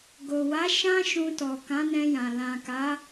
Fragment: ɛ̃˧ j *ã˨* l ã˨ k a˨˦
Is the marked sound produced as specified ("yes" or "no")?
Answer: yes